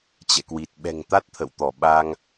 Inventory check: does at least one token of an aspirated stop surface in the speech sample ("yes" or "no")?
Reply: yes